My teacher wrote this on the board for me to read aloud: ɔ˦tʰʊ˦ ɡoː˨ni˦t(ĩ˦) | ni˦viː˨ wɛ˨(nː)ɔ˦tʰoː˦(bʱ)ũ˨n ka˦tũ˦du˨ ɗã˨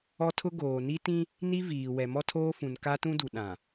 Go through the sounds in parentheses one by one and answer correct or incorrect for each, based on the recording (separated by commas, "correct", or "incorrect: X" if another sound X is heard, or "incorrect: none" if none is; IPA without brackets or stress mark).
correct, incorrect: m, incorrect: f